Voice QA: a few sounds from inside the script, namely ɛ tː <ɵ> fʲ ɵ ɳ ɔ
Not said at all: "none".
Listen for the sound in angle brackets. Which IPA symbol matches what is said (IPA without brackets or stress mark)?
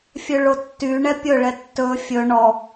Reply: ɵ